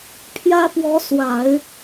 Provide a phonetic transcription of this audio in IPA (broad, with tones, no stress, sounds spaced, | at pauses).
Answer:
pʰ j ä˥ p w ɔ˧˥ s w a˨˩˦ ɪ̯